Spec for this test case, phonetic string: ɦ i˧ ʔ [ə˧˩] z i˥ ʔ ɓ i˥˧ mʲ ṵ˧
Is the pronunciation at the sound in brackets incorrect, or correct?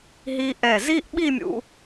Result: incorrect